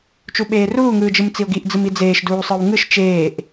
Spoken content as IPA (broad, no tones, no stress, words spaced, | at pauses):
t͡ʃuɓeːruː ŋɯːd͡ʒɯmt͡sio̯ɡiʔ d͡zɯmid͡zeːʃ duːsˤɯwŋɯʃ t͡ʃeːʔ